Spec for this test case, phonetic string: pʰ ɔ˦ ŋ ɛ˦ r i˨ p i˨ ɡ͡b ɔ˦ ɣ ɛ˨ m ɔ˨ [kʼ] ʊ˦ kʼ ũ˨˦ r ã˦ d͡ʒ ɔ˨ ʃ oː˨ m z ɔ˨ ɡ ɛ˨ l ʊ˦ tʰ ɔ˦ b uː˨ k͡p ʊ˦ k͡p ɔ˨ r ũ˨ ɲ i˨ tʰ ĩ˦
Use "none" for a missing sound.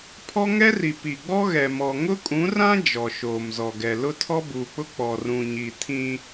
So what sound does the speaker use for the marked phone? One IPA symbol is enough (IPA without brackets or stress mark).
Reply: ŋ